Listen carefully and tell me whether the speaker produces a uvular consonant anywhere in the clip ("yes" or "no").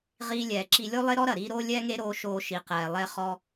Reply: yes